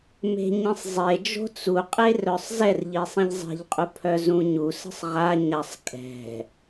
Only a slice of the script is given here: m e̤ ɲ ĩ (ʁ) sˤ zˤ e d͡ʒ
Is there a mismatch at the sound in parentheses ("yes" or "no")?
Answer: yes